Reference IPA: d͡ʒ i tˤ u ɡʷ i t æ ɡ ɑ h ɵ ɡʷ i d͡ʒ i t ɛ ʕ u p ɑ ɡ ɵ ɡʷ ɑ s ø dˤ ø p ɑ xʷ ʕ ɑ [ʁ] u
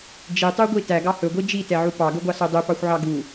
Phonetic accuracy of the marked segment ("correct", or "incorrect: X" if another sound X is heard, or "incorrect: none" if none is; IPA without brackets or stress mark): incorrect: ɡ